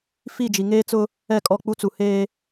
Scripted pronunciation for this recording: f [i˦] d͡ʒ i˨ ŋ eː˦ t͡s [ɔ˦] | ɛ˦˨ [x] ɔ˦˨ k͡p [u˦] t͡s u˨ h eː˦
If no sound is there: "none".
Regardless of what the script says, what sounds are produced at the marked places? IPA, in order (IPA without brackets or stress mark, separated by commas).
i˦˨, ʊ˦, kʼ, u˦